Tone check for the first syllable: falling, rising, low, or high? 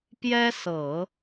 high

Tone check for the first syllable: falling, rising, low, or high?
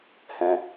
low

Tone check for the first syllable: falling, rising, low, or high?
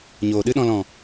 low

